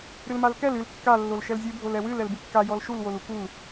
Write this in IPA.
ɾɨlmalkɛl ɨl kːa lːolʃɛlzʲɨ bʱolɛwɨl ɛlbɨkːa jɔlʃul wolukul

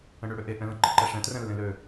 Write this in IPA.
ə̃ɳøɽøʔe ʔɛ̃lə̃ ǃeǃɛʂɛ̃ trɛ̃lːẽlø

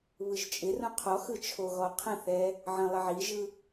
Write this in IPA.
βɯʒt͡ʃʼɪrũ qʰɔxɯ t͡ʃʰoɣɔqʰə̃θɛ | ʕə̃ lˠɪʕiʒɯ

